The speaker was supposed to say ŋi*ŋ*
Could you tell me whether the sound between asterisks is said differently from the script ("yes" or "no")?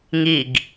yes